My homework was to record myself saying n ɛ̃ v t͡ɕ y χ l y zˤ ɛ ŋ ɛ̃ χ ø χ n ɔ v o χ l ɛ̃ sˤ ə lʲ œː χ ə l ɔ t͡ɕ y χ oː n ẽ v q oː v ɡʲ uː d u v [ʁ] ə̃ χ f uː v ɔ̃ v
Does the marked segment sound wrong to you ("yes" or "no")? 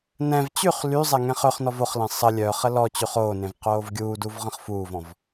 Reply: no